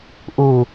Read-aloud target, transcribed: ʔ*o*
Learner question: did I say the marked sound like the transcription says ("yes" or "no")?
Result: no